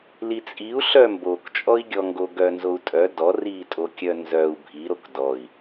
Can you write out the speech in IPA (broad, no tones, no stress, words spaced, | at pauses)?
lit͡sʼiu̯ ɬœmbokt͡ʃʼɔi̯ɡʲɔ ŋɡoɡœnzou̯tʼœ dɔritʼokʲœ nzœu̯ bʱiɾok dɔi̯